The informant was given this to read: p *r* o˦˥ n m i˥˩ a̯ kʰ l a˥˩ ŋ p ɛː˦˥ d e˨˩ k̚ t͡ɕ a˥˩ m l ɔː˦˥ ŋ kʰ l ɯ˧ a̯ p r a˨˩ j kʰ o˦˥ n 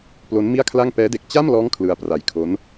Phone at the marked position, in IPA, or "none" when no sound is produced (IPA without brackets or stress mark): l